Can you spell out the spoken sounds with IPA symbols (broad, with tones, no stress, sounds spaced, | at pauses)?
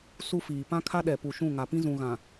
s u˦ f iː˨ p ã˦ kʰ a˦ ɗ ɛ˨ p u˨ ʃ ũ˦˨ ŋ a˨ p ĩ˦ z ũ˨ ɣ ã˨